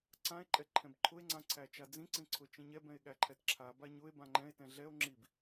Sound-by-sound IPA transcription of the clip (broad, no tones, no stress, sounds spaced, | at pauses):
ǀ ã e̯ ǃʼ ɛ ǃʰ ɛ̃ b ǃʰ ʊ e̯ ŋ͡ǀ ã ǀʰ æ t͡ʃ a d͡z ĩ ǀ ĩ ǀʰ ʊ t͡ʃ ĩ ɲ ɛ b ɛ̃ e̯ ɠ æ ǃʰ ɛ t ǁʰ a b a ɲ ʊ e̯ b ã ŋ͡ǃ ɛ̃ e̯ t ɛ̃ ɮ ɛ o̯ ŋ͡ǁ i b